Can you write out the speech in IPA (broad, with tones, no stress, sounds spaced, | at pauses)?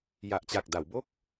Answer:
j a˨˩ ʔ t͡ɕ a˨˩ k̚ d a˩˦ w b o˥˩ k̚